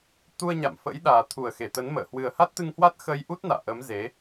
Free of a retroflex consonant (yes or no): yes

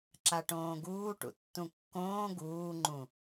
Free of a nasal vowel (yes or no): no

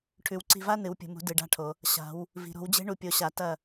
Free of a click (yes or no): no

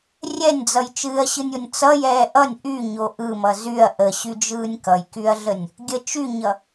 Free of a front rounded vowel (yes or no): no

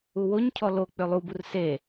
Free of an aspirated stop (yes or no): no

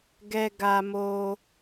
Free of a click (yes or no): yes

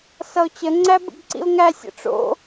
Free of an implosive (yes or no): yes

